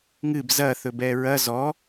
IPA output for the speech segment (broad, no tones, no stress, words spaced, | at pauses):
ŋɨb zɐθɵ bɛɹɐ zɔ